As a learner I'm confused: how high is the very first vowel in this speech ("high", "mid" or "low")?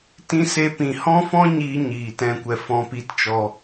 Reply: high